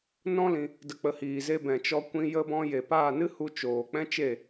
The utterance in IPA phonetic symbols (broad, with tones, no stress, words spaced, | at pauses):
nɔ̃˦lĩ˧ | də˨k͡pə˨ hiː˨ze˧ bɛ̃˨t͡ʃɔ˧kʷĩ˧ jə˧bɔ̃˧je˨ paː˦˨nɨ˦hu˧ t͡ʃoː˨k͡pɛ̃˦ t͡ʃe˦˨